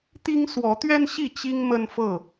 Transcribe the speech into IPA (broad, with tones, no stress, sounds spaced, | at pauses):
t̪ i˦ ŋ s w ɔ˨˦ t̪ ɥ ɛ˦ n ɕ i˥˨ t͡ɕ i˦ ŋ m ə˦ n f ɤ˥˨